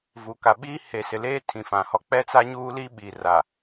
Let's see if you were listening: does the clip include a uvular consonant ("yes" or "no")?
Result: no